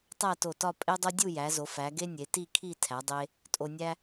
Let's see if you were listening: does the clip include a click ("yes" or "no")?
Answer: no